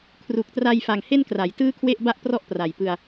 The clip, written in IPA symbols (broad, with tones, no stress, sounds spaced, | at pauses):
kʰ r u˨˩ k̚ t r a˧ j f a˨˩ ŋ h e˥˩ n k r a˩˦ j t ɯː˥˩ kʰ w e˥˩ ʔ b a˥˩ ʔ p r ɔ˥˩ ʔ p r a˨˩ j p ɯ˧ a̯